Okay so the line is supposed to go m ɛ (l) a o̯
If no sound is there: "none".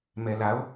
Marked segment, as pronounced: l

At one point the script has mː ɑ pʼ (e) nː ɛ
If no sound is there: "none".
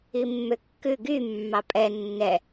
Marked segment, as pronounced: ɛ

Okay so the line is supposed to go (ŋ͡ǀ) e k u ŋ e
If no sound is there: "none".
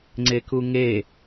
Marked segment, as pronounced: ŋ͡ǀ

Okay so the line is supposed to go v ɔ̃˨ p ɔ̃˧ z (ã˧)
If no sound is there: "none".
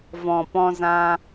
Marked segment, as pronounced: ã˧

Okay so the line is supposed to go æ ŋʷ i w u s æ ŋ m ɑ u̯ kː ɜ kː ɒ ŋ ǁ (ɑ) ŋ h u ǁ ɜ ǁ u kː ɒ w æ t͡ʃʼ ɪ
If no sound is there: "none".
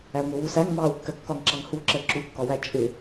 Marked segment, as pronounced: ɑ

